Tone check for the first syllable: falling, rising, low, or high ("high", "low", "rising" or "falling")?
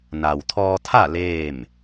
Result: low